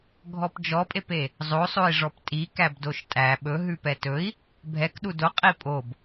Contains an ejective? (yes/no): yes